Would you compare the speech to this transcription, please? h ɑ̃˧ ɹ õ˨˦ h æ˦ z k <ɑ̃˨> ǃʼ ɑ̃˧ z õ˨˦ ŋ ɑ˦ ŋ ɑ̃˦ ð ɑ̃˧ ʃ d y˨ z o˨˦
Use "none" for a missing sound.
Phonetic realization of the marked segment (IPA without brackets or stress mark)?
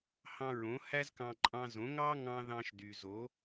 ɑ̃˧